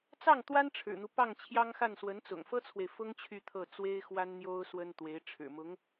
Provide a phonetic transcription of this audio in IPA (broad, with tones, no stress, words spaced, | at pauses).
t͡sɑ˥˩ŋt̪wa˥n ʈ͡ʂʰɻ̩˨˩n̪u˦ pɑ˥˩ŋt͡ɕʰjɑ˥ŋxa˥˩n swə˧˥nt͡sʊ̰˨˩ŋfɤ˥t͡sʰwe˨ɪ̯ fʊ˥ŋ t͡ɕʰy˥˧t̪ʰɤ˥˩ t͡swe˥ɪ̯xwa˥nn̪jo˥ʊ̯ swə˥nt̪we˧˥ɪ̯ ʈ͡ʂʰɻ̩˨˩ mʊ˧˥ŋ